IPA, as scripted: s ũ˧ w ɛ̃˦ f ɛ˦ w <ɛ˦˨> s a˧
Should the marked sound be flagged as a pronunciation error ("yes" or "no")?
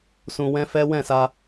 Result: yes